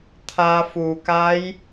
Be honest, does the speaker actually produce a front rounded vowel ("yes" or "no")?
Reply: no